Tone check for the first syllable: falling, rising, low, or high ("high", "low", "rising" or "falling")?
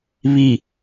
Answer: low